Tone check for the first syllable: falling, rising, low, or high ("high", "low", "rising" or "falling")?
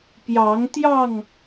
rising